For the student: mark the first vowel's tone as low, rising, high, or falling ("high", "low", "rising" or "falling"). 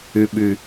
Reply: low